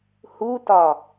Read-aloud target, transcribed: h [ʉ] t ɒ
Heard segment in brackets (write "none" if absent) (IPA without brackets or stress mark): u